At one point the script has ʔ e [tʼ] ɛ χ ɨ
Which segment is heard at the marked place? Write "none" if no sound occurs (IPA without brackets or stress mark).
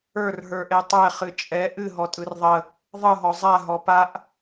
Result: tˤ